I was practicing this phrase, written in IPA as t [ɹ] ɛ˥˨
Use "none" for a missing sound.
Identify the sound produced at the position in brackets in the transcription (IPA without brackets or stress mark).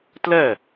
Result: l